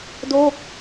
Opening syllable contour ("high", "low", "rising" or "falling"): falling